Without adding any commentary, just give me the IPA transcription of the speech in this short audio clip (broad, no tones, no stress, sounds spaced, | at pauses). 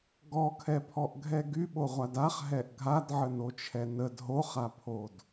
ɡ ɔ kʰ ɛ pʰ ɔ ʔ ɡʱ ɛ ɡ y ɓ o ʁʷ a d a χ ɦ ɛ ʔ ɡʱ a d ʕ ə n o t͡ʃʰ ɛ n ə d ɦ o χ a pʰ o d